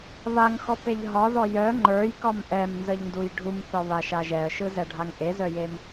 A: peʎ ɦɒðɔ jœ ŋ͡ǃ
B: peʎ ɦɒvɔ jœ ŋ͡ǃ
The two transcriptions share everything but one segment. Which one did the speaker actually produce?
A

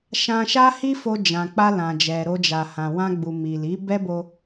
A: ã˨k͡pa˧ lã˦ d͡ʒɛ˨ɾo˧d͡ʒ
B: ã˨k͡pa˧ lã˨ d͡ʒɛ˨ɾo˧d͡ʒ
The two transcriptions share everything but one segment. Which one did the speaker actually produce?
B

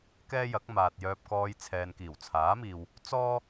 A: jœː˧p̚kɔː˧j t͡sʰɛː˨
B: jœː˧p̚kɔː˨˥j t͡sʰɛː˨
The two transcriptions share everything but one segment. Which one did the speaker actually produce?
A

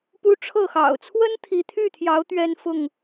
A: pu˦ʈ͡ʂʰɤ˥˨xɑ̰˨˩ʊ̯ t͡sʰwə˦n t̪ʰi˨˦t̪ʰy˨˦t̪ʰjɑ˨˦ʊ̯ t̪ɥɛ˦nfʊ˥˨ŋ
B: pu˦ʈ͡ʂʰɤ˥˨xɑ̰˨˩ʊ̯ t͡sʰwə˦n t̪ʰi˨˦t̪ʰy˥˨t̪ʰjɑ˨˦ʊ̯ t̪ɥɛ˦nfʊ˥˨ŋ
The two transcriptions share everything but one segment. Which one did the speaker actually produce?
B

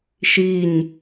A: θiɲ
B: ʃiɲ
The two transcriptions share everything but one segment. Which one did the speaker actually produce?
B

